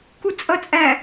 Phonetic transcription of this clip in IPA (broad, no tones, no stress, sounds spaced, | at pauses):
k u t͡sʼ ʌ t͡sʼ æ